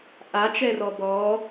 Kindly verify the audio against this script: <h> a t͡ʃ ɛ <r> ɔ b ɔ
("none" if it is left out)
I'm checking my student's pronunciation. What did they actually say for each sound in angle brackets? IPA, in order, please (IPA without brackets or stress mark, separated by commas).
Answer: ʔ, r